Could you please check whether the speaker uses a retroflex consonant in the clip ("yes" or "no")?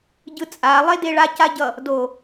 yes